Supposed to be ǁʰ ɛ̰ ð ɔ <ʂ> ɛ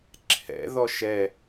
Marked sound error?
yes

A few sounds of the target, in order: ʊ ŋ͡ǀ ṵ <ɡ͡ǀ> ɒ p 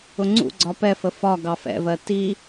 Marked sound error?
no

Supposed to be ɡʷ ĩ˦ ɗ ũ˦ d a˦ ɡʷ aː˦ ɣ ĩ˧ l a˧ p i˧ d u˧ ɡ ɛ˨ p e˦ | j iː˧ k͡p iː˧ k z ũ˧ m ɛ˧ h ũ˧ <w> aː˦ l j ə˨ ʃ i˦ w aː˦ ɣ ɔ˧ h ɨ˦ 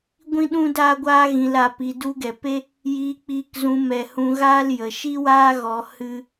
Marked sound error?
yes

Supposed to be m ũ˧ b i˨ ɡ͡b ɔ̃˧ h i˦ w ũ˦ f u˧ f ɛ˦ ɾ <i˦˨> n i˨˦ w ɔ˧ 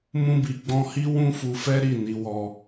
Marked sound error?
no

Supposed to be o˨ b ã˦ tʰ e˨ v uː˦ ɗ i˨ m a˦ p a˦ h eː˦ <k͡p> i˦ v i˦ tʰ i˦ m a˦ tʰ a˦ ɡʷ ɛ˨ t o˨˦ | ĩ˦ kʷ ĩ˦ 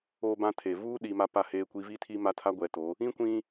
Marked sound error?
yes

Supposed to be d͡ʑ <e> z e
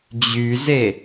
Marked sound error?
yes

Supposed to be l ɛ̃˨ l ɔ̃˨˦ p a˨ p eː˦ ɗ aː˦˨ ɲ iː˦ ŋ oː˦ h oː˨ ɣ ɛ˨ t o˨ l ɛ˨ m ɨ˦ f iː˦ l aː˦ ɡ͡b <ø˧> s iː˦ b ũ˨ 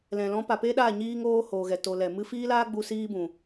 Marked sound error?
yes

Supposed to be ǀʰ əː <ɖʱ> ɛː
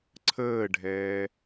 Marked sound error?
no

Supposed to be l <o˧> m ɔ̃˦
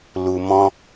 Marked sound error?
yes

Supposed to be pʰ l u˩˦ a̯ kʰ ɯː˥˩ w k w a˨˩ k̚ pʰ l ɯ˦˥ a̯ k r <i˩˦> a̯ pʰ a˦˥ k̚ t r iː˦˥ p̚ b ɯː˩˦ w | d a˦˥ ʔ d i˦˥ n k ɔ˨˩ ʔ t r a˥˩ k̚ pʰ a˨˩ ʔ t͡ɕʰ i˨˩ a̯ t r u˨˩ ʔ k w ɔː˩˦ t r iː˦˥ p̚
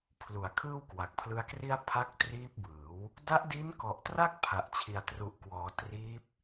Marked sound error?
yes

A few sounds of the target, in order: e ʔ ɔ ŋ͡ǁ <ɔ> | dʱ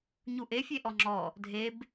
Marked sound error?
no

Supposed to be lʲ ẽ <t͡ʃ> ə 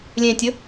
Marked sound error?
yes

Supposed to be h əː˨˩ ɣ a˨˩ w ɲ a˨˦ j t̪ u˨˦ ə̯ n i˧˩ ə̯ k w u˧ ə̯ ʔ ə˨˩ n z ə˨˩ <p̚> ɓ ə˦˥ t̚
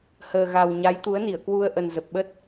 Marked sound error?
no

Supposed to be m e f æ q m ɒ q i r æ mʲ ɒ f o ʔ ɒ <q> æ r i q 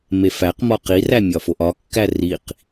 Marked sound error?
yes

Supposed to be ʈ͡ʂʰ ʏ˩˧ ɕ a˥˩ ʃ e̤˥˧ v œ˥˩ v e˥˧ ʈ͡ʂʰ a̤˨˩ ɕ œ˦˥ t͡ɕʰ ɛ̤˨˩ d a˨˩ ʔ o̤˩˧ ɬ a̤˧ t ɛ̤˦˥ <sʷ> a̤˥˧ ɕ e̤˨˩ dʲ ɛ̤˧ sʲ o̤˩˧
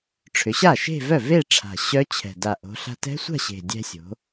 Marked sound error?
no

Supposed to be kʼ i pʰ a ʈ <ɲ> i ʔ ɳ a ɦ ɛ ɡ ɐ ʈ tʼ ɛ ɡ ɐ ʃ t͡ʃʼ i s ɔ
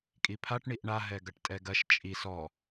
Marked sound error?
yes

